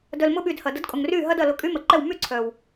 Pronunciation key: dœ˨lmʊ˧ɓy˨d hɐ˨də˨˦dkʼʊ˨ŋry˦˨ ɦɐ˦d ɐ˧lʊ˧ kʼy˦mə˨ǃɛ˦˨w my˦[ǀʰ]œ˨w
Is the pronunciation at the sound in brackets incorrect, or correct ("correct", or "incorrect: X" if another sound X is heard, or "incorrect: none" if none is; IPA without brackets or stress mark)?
correct